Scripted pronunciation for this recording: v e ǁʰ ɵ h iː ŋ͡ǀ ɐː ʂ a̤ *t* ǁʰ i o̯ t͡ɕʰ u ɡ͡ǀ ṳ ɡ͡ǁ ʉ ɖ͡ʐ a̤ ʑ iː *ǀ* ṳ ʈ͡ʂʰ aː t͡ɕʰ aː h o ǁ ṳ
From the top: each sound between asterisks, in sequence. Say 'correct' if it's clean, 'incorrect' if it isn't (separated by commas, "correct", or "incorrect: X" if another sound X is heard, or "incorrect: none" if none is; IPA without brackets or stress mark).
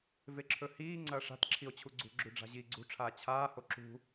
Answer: correct, incorrect: ɡ͡ǀ